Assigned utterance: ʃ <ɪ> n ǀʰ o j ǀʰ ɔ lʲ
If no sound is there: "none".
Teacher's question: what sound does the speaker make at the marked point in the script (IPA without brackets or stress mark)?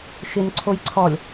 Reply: ɪ